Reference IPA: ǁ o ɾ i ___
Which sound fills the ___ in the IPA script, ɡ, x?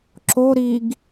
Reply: ɡ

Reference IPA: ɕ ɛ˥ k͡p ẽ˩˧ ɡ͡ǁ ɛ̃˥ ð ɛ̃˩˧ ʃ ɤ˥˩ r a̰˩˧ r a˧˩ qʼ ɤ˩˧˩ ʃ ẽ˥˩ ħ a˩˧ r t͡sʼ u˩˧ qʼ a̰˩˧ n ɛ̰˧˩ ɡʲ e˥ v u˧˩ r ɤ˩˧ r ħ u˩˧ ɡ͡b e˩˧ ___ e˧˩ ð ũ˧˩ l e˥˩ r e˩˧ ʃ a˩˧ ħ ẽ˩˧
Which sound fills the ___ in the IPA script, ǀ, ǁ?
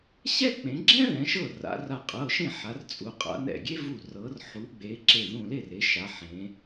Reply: ǁ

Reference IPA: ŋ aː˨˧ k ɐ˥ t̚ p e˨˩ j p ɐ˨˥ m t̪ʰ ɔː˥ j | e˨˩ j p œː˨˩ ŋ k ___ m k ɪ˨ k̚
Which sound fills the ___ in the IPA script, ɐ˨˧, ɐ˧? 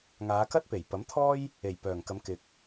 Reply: ɐ˨˧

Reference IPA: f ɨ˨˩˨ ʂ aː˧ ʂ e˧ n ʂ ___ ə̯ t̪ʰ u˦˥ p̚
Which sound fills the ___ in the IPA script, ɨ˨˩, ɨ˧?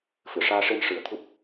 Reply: ɨ˨˩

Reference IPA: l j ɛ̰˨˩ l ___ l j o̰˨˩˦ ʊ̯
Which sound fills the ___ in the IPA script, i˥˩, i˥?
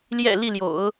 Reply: i˥˩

